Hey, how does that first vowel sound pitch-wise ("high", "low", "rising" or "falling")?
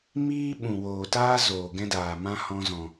high